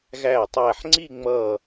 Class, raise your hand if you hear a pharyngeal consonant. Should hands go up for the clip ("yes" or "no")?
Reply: yes